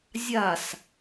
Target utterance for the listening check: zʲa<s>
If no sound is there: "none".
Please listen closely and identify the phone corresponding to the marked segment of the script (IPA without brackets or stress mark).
s